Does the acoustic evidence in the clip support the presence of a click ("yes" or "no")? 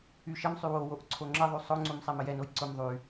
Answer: yes